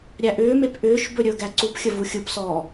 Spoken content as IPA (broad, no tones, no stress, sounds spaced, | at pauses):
ɾʲ æ ʔ ʏː m e p ʔ ʏː ʃ b ɵ ɾʲ ɵ ɡ æ ǀ u p xʲ ə v u xʲ ɯ p s ɔː